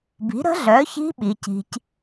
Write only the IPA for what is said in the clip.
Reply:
b i̤˨˥ ɾ ə̤˦˥ ɮ œː˨˥ ç i̤˦˥ ɓ i˨˥ c i̤˦˥ c

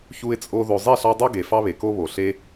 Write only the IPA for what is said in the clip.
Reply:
ç u˧ ɪ̯ t͡sʼ o˧ ð o˨ zˤ e˦˨ ɬ ɑ˧ dˤ o˦ ɡ e˨ f ɑ˦ β e˨ k o˦ β o˨ ɬ e˦

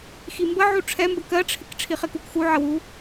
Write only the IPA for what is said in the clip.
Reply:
x i m b ə ʕ u ʈ͡ʂʰ ɛ m b ə k ɜ ʈ͡ʂʰ ɪ k ʈ͡ʂʰ i χ ɪ k u k x u ʕ ə w u

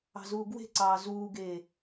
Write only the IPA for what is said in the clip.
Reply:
ɑ̤ z uː ɡ w e̤ ǀ ɑː z uː ɡ eː

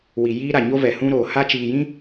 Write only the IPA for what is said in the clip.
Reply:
w i˨ j iː˦ ɾ a˨ ɲ o˦ v ɛ˨ h ũ˦ ɾ oː˨ h a˦ t͡ʃ iː˨ j ĩ˦

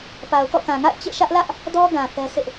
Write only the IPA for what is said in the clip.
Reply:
p a˨ ʊ̯ k ɔ̰˦˨ k ã˨ ŋ a̰˦˨ ɪ̯ t͡ɕ ḛ˦˨ ʃ ä˦ ʔ l ä˦ ʔ | d ɔ˦ ɡ ã˨ θ ɛ˦ s ɪ˦ ʔ

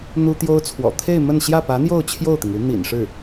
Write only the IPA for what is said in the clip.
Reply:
n̪ u˥ t̪ j o˥ ʊ̯ t͡sʰ w ɔ̰˨˩ t̪ʰ e˥˧ ɪ̯ m ə˥˧ n ɕ j ä˥˩ p ä˧˥ n̪ j o˥˧ ʊ̯ t͡ɕʰ j o˥˩ ʊ̯ t̪ i˩ ŋ u˧˥ n̪ ḭ˨˩ n ʂ ɻ̩˥˩

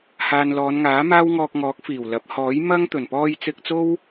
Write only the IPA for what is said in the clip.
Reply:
h aː˨ n l ɔː˨˧ n ŋ aː˨˥ m aː˥ w ŋ ɔː˧ k̚ ŋ ɔː˨˥ k̚ f iː˨˩ w l ɐ˨˥ p̚ h ɔː˨˥ j m ɐ˥ ŋ t̪ ɵ˨˩ n p ɔː˧ j t͡s ɪ˧ k̚ t͡s o˥ w

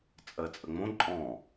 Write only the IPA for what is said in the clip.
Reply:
t͡sʼ ɜ t͡sʼ ə ŋ͡m õ ǃʼ ɔ̃

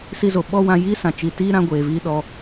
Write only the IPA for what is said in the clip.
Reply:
s i˧ z o˨ ɓ ɔ˦ w ã˧ j i˦ s ã˨ t͡ʃ i˨ t iː˦ ɾ ã˧ ɡʷ eː˨ v iː˦ ɗ ɔ˧

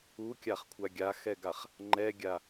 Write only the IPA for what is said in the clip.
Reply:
u kʲ a χ kʷʰ a ɡʲ a x ɛ ɡ a χ | ŋ͡ǃ ɛ ɡʲ a

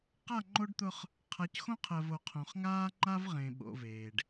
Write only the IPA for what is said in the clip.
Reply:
q a˦˨ ŋ͡ǃ o˦ ɖ t̪ ʊ˦ χ | qʰ a˨˦ c x õ˦ qʰ ɜ˨ v o˨ qʰ õ˨ χ ŋ aː˦ ŋ͡ǃ a˦ v ʁ ẽ˨ ɓ o̰˨ v eː˨ ɖ

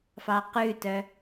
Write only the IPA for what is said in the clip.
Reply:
f ɑ q ʉ t œ

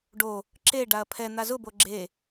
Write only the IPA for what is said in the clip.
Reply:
ɖ o | ǁ e ɖ a ɐ̯ pʰ ɛ n̪ a z ʊ b o ɡ͡ǁ e

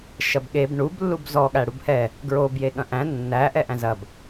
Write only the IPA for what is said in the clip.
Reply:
ʃ ɐ b ɠ e b ɳ u b lː u b z ɔ ɠ æ ɽ u b h ɛ | ɡ ɹ o b j e ɠ ɐ̃ ʔ æ̃ nː æ ʔ ɛ ʔ æ̃ z ɐ b

